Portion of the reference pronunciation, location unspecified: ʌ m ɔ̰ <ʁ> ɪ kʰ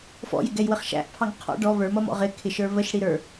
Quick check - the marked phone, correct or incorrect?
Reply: correct